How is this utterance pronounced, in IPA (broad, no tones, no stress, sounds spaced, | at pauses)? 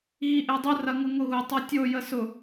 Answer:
ɣ i ʔ e dˤ ʊ r ɐ ŋ ʊ ŋ ʊ ɣ ʊ tˤ ɐ tʲ o j ə s ʊ